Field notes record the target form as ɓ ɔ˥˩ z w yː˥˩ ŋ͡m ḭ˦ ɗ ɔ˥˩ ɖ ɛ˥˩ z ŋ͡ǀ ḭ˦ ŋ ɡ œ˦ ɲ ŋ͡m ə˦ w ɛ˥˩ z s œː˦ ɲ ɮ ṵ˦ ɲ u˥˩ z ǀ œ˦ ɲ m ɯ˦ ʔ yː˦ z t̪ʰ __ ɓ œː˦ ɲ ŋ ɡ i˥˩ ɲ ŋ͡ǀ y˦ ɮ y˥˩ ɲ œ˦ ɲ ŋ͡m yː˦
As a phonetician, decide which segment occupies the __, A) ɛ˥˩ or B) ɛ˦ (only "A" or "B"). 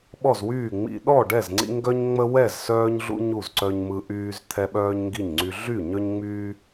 B